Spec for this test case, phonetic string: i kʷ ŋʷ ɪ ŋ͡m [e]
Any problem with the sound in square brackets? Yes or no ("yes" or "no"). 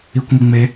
no